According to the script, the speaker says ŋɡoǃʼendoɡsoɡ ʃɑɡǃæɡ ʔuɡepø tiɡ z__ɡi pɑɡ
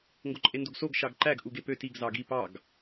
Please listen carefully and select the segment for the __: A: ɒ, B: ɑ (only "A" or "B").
B